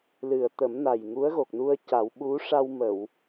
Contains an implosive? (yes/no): yes